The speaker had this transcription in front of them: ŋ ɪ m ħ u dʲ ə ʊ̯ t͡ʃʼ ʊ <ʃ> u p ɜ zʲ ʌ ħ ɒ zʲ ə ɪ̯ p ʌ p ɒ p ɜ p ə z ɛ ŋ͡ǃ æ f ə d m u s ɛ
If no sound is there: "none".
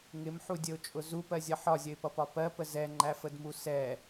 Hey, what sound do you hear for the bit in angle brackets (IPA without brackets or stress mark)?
z